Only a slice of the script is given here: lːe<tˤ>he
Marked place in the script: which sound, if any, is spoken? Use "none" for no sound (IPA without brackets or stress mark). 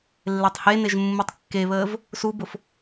tˤ